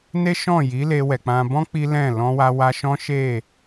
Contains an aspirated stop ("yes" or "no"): no